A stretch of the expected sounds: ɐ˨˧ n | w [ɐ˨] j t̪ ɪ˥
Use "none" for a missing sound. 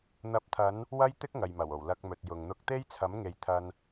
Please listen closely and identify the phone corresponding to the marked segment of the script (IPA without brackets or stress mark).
ɐ˥